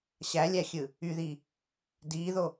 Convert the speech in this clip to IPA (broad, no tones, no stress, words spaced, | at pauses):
ɕælʲæxʲɯ | yði | diðo